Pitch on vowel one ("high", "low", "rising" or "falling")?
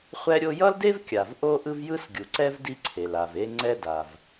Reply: high